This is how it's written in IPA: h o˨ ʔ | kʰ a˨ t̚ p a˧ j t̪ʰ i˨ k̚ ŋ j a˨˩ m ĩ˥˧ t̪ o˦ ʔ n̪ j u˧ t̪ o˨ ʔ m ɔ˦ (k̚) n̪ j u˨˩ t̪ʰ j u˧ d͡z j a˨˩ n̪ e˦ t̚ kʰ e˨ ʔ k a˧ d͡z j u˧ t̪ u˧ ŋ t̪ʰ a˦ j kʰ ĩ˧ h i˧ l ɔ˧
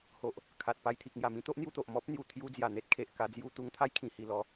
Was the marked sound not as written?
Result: yes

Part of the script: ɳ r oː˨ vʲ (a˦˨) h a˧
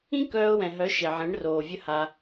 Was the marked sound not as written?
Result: yes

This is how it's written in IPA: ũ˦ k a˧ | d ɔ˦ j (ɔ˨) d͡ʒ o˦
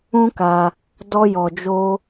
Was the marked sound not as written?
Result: yes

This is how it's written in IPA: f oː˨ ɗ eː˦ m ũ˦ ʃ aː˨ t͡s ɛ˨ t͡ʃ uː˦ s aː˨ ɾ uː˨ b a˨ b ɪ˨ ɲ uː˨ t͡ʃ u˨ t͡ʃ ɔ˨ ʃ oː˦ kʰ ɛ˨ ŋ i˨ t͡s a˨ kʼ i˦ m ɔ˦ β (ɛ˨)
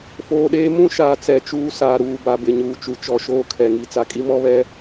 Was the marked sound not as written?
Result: yes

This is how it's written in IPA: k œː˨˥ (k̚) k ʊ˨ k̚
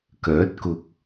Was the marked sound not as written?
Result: yes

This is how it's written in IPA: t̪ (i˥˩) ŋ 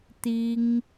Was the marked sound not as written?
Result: yes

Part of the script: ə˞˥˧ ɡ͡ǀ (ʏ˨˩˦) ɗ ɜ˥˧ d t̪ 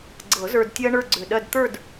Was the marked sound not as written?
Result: yes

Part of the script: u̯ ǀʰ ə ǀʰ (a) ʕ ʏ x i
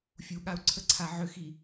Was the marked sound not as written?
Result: no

